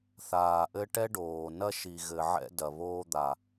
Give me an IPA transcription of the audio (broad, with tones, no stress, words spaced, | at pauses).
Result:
θaː˨ʔɘ˦ʈɛ˦ɖoː˨ nɐ˦ʃi˨ɣɘ˨ ʕɛ̰˦dɐ˨βoː˦d̪a˨